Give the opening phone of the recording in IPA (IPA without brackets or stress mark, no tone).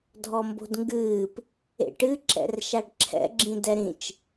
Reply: dʱ